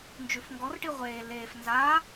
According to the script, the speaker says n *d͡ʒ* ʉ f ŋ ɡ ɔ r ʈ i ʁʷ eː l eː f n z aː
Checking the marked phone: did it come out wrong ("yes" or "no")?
no